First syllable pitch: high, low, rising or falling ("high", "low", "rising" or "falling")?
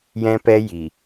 high